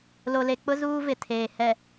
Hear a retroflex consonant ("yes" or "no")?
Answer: no